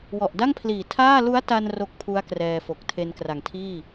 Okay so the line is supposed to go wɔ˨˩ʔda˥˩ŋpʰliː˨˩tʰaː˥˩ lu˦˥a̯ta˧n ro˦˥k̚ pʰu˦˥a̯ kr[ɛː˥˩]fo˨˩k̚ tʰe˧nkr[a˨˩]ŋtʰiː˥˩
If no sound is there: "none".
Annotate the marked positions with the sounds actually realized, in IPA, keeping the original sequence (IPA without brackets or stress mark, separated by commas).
ɛː˧, a˨˩